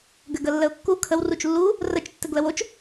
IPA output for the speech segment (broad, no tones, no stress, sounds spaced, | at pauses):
ɡ ɘ ɡ ə lː ə ʊ̯ kː u kʰ ə w r u t͡ʃ lː u | r ə t͡ʃ tː ɘ ɡ l ə w o t͡ʃ